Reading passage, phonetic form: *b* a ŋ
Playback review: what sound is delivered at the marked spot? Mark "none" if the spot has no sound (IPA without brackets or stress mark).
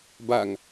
b